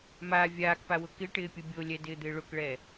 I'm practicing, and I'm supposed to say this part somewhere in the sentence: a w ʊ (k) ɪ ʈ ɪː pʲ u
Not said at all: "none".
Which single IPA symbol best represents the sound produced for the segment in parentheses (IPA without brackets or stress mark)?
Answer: k